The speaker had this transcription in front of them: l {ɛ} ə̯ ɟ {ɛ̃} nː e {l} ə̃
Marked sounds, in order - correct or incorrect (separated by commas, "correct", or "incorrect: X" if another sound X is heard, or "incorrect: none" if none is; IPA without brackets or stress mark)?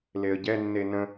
incorrect: e, incorrect: ɛ, incorrect: n